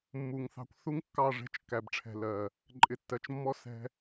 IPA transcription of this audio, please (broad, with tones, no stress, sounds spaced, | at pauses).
mː u˨ ŋ θ ɑ̤˦ kʷ θ u˦ ŋ kː ɑ˦˨ ʐ ɛ̤˧ t͡ʃ kː æ˨ b ʈ͡ʂʰ ɛ̤˨ l ɜ˨ | ǃʼ ɪ˨ tː ɜ˨ t͡ʃ mː ɔ˦ s ɛ̤˦